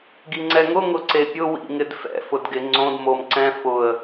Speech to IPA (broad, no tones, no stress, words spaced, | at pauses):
ɡiŋ͡ǀɛŋʊ ŋʊǀepʲʊ wḭŋɪdfɛ̰ fʊdɡɪ ŋ͡ǀõd momǀɛ̃ fʊə̯